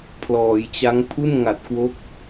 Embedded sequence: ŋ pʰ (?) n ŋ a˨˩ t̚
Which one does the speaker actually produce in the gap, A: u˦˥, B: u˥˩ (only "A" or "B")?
B